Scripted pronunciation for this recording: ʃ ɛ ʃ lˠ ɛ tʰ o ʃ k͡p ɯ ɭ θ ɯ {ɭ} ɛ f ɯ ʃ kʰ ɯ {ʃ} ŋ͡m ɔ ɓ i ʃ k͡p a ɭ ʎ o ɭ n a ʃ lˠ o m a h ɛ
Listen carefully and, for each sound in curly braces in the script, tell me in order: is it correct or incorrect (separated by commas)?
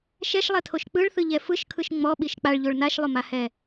incorrect, correct